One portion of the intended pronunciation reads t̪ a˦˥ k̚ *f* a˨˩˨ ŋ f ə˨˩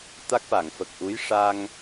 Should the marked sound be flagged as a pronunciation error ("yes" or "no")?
no